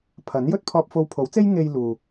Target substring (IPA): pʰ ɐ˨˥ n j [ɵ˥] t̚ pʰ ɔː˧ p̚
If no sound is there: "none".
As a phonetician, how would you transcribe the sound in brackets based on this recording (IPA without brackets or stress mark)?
ɵ˥